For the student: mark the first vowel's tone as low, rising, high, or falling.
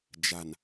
low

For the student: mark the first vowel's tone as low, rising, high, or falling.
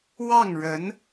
falling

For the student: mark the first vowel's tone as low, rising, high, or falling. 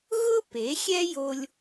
high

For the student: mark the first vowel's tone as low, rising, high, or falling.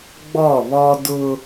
falling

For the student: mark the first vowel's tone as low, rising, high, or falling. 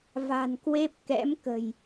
low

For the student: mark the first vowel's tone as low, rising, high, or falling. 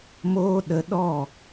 high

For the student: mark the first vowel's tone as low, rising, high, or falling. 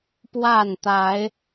falling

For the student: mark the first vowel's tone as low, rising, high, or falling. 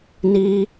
high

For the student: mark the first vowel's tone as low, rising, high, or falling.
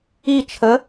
falling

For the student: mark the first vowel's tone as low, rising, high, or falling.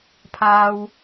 high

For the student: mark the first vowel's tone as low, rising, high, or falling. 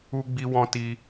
high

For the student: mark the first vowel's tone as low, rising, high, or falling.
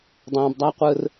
low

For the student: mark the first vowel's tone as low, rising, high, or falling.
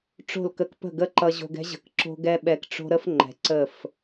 falling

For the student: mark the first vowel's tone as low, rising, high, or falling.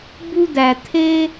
high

